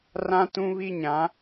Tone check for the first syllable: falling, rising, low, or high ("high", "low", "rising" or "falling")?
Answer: high